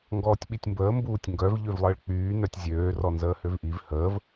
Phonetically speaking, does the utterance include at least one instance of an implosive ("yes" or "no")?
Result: yes